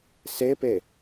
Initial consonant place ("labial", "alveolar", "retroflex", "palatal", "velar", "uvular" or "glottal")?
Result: alveolar